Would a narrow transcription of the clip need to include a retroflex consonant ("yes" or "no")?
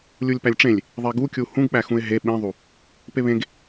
yes